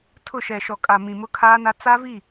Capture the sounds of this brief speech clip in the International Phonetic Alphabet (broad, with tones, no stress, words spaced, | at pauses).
tʰʊ˦˨ ʃɛ˨ʃɔ˨kʼa˨ mĩ˨mʊ˦ kʰaː˦na˦ t͡sa˦vi˦˨